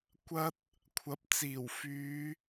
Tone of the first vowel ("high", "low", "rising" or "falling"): high